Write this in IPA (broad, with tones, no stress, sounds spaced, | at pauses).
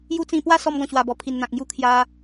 j u˦ t͡s ĩ˧ p w a˥˧ s ɔ˧ m ɡ ɔ̃˨˩ ɕ w a˨˩ b ɔ˨˩ pʰ i˨˩ n n̪ ã˨ k̚ ŋ j u˦ kʰ j a˧